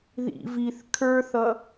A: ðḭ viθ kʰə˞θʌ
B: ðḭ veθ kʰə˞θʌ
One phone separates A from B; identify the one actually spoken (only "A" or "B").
A